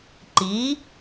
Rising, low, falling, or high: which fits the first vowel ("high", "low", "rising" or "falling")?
rising